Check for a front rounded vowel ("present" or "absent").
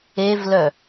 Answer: present